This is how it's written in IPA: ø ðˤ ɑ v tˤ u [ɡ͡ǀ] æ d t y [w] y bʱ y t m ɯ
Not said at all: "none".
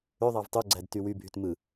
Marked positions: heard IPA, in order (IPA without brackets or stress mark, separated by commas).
ɡ͡ǀ, w